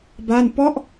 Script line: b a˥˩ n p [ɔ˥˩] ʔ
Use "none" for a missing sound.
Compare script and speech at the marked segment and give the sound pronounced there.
ɔ˥˩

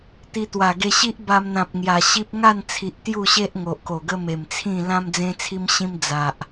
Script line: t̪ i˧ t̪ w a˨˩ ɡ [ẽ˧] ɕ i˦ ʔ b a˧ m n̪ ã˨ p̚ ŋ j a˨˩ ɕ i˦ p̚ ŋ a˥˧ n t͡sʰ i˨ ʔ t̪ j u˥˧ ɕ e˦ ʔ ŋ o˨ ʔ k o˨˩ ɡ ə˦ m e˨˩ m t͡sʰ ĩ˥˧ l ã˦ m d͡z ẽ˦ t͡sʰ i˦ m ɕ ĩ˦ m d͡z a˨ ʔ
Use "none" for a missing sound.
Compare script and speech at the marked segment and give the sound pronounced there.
e˧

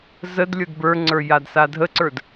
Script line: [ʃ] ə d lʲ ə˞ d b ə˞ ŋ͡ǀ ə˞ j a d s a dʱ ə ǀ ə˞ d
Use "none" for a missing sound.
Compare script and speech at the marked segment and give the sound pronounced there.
z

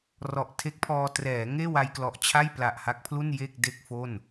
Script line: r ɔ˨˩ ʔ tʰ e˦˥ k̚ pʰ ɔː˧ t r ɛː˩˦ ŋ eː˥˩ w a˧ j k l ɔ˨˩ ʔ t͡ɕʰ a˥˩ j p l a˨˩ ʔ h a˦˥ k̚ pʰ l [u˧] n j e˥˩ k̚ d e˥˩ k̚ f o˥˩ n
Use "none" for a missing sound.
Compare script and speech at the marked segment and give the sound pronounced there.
u˥˩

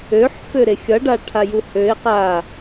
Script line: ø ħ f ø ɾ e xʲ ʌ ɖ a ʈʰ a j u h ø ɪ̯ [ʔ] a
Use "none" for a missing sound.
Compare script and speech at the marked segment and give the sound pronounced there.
q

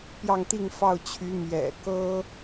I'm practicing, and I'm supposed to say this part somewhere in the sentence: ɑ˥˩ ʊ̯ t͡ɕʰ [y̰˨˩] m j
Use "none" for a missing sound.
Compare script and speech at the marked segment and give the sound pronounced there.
y˧˥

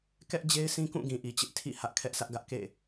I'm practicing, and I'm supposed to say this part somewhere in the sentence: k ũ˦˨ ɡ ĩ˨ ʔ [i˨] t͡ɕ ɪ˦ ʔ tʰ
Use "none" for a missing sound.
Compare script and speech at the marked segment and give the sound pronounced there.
i˨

